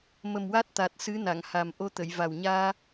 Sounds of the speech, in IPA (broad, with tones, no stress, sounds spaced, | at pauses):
m ə˨˩ m w a˦˥ t̚ t̪ a˨˩ t̚ s ɨ˧˥ n a˨˩˨ ŋ h a˨˩ m ʔ o˧ t̪ ə˨˩˨ j v a˨˩ w ɲ aː˧